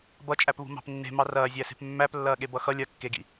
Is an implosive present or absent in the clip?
present